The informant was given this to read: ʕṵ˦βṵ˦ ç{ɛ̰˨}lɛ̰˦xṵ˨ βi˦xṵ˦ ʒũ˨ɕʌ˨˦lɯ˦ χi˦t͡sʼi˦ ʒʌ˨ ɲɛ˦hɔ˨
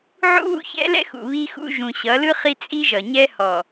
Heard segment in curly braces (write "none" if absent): ɛ̰˦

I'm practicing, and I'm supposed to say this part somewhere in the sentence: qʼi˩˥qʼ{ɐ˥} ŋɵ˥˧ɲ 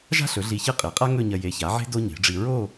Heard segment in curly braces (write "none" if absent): a˥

